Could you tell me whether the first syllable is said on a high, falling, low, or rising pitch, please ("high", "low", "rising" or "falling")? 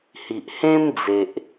low